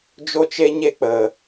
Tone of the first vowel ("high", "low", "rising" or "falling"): high